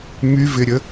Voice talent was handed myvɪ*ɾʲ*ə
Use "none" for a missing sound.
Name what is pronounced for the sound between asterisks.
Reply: ɾʲ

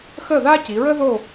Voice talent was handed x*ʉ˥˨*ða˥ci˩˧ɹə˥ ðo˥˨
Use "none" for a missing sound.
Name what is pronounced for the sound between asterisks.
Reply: ə˥˨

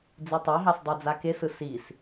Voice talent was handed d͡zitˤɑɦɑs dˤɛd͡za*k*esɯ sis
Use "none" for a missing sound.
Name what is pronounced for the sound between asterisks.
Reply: k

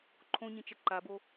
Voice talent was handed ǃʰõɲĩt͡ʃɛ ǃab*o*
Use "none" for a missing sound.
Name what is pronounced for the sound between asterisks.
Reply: o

